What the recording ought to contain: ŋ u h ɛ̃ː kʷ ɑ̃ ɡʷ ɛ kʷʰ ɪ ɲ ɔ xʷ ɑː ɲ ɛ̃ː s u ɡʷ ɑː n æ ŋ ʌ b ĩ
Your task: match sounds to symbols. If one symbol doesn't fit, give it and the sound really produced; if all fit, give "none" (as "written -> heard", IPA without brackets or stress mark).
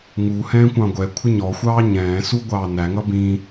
none